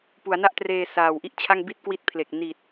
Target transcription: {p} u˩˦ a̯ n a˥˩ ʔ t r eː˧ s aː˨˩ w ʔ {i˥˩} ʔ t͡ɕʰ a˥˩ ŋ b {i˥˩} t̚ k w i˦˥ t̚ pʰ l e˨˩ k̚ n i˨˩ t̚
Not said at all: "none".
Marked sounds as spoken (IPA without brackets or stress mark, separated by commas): p, i˥˩, i˥˩